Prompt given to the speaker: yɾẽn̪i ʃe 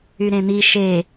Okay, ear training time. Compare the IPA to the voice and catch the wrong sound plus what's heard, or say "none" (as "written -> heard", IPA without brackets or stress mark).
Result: none